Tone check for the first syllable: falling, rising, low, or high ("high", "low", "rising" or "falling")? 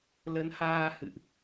rising